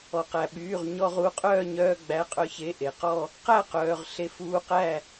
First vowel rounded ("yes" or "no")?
yes